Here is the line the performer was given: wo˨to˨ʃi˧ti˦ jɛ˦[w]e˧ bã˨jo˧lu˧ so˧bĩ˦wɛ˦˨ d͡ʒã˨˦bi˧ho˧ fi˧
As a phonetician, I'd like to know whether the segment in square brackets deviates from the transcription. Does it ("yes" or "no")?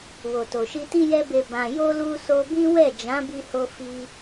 yes